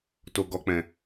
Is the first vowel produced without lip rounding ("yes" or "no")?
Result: no